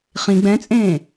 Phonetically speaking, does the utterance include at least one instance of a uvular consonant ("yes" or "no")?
yes